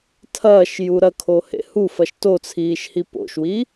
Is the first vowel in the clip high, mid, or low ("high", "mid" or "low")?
low